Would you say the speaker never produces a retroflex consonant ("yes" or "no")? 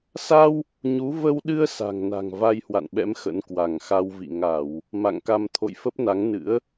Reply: yes